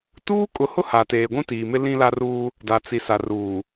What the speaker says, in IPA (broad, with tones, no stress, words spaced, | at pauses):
tuː˦ kʼʊ˨˦hʊ˦ ha˨teː˨ ɡʷũ˦tiː˨mɪ˦ lĩ˦la˦ruː˦ | da˨t͡si˨ sa˨ruː˨